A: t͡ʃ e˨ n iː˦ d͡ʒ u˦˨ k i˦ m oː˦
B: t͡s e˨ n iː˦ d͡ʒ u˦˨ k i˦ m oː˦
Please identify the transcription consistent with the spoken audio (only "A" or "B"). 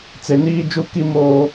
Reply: B